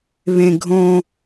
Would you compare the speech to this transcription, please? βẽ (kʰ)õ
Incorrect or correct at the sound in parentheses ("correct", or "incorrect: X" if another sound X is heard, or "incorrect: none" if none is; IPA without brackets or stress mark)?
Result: incorrect: ɡʱ